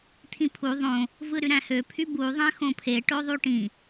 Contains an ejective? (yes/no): no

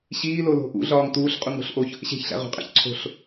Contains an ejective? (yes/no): yes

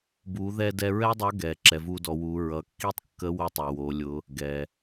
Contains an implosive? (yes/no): no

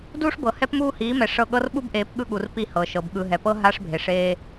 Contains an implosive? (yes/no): yes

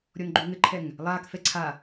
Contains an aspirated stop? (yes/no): yes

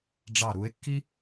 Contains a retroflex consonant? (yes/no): yes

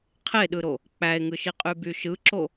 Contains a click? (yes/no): yes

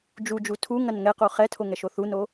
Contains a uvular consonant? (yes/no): yes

